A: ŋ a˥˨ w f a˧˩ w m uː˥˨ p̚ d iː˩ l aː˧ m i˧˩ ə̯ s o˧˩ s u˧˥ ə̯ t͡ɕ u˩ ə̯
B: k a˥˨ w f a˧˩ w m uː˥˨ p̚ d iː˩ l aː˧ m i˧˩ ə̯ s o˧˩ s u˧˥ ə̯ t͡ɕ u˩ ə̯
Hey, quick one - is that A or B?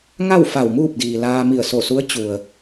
A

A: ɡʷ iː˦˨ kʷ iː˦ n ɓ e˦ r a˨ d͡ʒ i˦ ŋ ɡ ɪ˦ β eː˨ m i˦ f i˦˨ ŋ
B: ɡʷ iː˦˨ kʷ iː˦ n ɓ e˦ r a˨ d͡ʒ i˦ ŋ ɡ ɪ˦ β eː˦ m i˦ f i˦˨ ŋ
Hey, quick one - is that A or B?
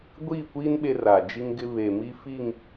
A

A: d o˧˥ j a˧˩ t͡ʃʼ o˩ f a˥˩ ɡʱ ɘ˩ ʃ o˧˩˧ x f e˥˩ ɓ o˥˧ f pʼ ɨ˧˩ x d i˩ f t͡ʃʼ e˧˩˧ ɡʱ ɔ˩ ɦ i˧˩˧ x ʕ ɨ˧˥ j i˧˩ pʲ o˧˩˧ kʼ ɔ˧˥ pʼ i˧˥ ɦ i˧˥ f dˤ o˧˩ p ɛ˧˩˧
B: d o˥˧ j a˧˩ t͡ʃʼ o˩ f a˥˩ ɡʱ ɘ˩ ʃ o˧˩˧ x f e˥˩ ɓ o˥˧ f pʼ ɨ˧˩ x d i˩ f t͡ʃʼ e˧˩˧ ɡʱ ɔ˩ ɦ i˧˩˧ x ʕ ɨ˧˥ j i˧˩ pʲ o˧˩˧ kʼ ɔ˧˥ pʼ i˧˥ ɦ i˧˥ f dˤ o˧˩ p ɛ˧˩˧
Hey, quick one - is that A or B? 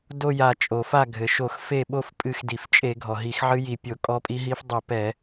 B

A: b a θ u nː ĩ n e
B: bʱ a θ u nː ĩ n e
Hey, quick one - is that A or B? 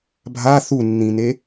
B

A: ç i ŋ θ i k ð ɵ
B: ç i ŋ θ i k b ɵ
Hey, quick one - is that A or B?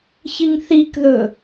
A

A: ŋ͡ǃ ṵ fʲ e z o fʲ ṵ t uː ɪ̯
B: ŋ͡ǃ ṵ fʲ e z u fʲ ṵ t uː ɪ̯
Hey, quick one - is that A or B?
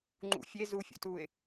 B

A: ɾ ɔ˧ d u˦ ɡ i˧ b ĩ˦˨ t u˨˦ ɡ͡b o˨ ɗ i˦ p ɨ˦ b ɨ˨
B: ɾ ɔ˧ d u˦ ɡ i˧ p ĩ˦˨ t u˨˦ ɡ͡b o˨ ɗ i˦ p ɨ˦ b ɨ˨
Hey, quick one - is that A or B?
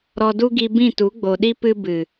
A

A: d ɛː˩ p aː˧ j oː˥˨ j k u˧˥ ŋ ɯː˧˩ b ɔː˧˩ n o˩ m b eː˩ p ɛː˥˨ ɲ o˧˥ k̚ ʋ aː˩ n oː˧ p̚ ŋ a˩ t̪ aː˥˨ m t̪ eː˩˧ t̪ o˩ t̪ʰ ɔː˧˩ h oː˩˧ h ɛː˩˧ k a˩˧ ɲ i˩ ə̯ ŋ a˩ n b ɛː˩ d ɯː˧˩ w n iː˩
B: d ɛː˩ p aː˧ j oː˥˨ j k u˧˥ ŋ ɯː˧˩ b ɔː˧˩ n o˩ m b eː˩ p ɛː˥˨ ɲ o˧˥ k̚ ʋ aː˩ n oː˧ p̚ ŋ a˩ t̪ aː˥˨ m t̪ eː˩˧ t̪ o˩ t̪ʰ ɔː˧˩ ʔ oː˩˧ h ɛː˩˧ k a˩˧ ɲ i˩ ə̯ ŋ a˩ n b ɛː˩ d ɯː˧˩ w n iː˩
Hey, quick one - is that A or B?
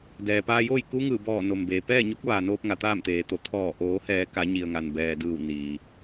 B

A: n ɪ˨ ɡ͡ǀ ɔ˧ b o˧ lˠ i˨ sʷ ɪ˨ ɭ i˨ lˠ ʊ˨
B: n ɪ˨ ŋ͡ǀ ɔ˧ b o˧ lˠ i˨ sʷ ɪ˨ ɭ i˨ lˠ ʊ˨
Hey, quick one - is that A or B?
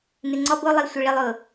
B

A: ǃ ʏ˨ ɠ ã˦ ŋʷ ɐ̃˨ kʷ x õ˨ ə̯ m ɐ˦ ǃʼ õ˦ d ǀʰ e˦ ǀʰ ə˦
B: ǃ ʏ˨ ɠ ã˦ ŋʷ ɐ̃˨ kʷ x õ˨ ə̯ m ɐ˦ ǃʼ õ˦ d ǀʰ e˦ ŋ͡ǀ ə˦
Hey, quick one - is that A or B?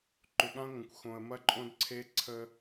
A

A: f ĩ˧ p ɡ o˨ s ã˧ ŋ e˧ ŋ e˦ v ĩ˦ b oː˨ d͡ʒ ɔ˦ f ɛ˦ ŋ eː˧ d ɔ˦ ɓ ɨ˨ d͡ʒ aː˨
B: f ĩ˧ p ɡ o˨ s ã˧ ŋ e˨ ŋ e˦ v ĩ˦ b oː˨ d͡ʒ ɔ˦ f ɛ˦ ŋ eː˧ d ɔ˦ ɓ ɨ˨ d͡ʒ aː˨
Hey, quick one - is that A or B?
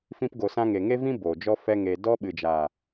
B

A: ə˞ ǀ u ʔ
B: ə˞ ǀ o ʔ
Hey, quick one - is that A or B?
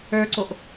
B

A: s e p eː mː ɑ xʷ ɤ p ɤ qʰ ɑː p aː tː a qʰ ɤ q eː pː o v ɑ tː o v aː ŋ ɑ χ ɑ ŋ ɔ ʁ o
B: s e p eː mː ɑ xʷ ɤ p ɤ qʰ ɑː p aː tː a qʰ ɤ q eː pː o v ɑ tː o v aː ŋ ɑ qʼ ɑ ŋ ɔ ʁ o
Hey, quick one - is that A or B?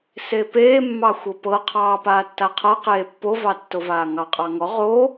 B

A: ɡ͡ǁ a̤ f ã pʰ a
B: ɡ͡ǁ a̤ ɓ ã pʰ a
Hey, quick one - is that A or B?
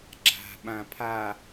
B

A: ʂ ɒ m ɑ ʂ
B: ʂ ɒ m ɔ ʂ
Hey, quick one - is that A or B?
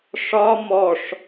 B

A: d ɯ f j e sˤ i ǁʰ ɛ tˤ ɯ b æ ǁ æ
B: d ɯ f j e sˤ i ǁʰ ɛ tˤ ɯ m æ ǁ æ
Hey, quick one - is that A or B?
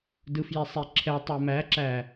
B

